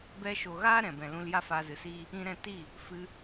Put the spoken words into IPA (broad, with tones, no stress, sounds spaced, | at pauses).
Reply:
b ɛ˧ ʃ o˨ ɣ aː˦ ɾ ɛ̃˨ b ɛ̃˨ l ũ˧ l j a˦ f aː˧ z ɨ˨ s iː˦ | ĩ˦ ɾ ɛ̃˦ t i˦˨ | f ɨ˧